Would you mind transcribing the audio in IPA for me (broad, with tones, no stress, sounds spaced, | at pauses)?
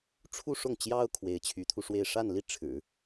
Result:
ʈ͡ʂʰ u˥˧ ʂ ʊ˥˩ ŋ t͡ɕ j ɑ˥ ʊ̯ kʰ w e˧˥ ɪ̯ t͡ɕʰ y˧˥ t̪ʰ u˧ ʂ w e˥˧ ɪ̯ ʂ a˥˧ n l i˥˩ ʈ͡ʂʰ ɻ̩˨˩˦